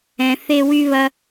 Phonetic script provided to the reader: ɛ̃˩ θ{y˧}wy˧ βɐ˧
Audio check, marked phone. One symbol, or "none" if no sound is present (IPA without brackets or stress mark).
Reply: e˧